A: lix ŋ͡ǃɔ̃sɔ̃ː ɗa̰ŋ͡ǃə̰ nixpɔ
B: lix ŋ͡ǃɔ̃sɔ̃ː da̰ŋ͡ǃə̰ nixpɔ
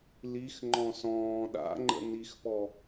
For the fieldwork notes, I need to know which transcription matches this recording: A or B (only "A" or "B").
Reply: A